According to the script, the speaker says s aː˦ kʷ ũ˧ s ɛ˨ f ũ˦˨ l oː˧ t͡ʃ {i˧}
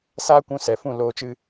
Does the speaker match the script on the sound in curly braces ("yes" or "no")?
no